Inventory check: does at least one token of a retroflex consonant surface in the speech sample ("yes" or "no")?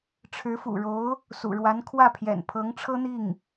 yes